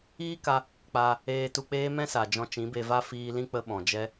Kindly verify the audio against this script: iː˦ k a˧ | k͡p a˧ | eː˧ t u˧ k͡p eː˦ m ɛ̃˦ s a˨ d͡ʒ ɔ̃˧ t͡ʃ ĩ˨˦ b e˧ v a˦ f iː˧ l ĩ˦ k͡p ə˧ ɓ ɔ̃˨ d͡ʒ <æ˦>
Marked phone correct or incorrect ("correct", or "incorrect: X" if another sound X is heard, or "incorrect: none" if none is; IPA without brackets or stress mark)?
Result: incorrect: ɛ˦